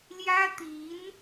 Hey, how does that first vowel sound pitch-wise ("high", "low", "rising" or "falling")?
high